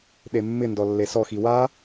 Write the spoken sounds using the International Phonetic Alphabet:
ɗ e mː ɪ n d ɔ lː e s ɔ x i w a

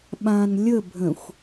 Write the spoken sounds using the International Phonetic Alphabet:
ɓ ã n lʲ ə bʱ ə̃ xʷ

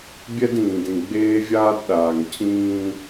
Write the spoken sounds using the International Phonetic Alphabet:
bʲ ɛ˦ d ĩː˨ d ĩ˨ ɡ͡b eː˦ vʲ aː˦ d ɗ aː˨ ŋ cʰ ĩː˦

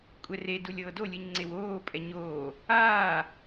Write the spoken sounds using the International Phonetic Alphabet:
kʷʼ ɛ r e d u lʲ ɤː d o lʲ ɯ ɲ ŋ͡ǀ e w oː pʼ ɛ ɲ oː | aː

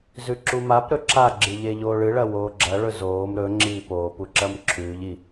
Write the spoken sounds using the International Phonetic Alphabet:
z ʉ ǁ u m a p ɾ ɵ ǁ a ɡ͡ǁ ɨ ʎ e ʎ oː ɭ ɨ ɭ ɐ w oː ɡ͡ǁ ɐ ɭ ɵ z oː m ɾ ɵ ŋ͡ǁ iː p oː p u ǁ ɐ m ǁʰ ʉː ʎ i

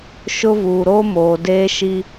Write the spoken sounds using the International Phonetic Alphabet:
ʃ ʊ˦ v uː˨ ɾ oː˦ m oː˨ d eː˦ ʃ i˦

